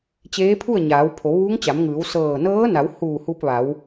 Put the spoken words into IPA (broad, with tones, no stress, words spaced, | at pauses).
t͡ɕeː˧˥pʰu˥˨ə̯ ɲaː˩˧wpʰo˩˧ ʋuː˧˥ŋt͡ɕa˩˧mŋɯː˩˧w sɤː˧˩ nɤː˧˥na˩˧w huː˧˩hu˧p̚ʋa˩˧w